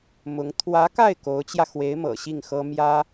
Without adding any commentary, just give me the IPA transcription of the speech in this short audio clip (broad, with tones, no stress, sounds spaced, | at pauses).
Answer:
m ʊ˧˥ ŋ t̪ʰ w ä˧˥ k a˥˩ ɪ̯ k o˧˥ ʊ̯ t͡ɕ j ä˧ x w e˧˥ ɪ̯ m ɤ̰˨˩ ɕ i˥˩ ŋ x ɤ˥ m j ä˥